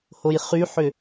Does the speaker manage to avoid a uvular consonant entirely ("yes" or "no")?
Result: no